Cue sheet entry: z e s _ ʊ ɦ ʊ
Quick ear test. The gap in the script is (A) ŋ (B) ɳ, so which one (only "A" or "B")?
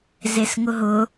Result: A